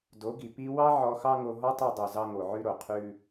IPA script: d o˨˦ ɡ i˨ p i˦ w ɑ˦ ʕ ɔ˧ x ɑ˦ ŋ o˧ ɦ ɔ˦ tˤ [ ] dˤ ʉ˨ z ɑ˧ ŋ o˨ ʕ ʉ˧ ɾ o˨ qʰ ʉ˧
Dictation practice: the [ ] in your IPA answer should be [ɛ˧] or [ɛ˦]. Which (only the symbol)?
ɛ˧